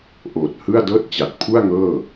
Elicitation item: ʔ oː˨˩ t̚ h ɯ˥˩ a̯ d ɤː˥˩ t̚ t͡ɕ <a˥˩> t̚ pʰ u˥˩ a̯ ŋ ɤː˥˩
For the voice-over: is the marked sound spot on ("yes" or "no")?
no